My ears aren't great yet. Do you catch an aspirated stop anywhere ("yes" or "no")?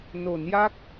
no